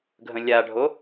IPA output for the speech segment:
ɡʱə̃lʲaɖʱo

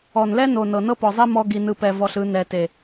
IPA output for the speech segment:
ɔ˨nlɛ˦no˨ nɤ˨nɤ˦pɔ˨zˤɛ˦ mɔ˧ɡi˨nɯ˨pɛ˨ vɔ˨ɬɯ˨ nɛ˨te˨

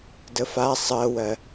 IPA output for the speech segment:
dəfa sˤɜwɜ

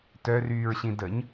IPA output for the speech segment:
tœryːɹɕĩ dəɲ

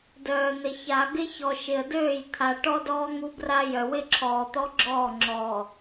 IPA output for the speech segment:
dœː˨n̪ɪ˨ ça˨ɡɪ˦çɔ˨ ʃɪ˨ə̯døː˦˨j t̪ʰa˨ ʈɔ˦dɔː˦ ŋu˦bra˦ jœ˨wɪ˦ǁʰɔː˨t̪ɔ˦ ɡ͡ǁɔː˦˨ŋ͡ǁɔː˨

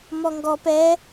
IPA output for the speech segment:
mɔŋɡɔ pɛ

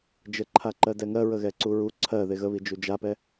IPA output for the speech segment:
d͡ʒə ǃʰaǃɜdɛŋɜ ɹəɣɛǀuɹu ǀʰɜ ðeɣəβi d͡ʒud͡ʒapɛ

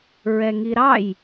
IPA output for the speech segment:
ɹɛŋiɾɑj

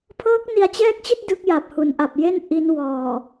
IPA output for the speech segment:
pʰɤː˦˥k̚ni˧a̯t͡ɕɛː˦˥k̚t͡ɕi˥˩t̚ dɯ˦˥k̚ja˨˩p̚ hu˩˦nʔa˨˩p̚je˥˩n ʔi˦˥n wɔː˨˩

